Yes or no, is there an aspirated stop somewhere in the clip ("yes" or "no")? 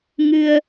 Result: no